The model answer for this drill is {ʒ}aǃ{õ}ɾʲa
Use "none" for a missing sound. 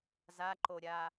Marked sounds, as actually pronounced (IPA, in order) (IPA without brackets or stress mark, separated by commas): z, o